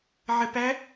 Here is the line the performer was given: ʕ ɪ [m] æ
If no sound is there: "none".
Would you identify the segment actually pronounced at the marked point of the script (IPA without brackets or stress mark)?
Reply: p